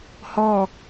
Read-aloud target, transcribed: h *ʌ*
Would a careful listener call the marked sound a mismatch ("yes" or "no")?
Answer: yes